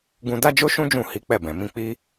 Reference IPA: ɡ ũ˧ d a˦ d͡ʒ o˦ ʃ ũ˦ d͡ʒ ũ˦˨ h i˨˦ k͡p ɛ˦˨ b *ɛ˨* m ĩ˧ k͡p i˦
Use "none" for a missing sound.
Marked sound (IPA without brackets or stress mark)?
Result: ɛ̃˨